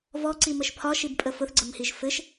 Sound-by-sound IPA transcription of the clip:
v ɔ ǀ i m ə ʃ pʰ ɒ ʃ i b pʼ ə f ʊ θ ɡ͡ǀ ə m h i ʒ f ɘ ʃ

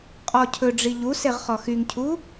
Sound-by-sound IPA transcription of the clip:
qʼ ɔ cʰ ɵ ɖ͡ʐ i ʎ u s e ʁ χ ɔ x y ŋ cʰ u

